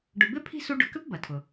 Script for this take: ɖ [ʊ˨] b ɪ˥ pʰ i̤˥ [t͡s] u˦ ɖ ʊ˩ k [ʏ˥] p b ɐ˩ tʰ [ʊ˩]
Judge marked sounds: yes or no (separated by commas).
yes, no, yes, yes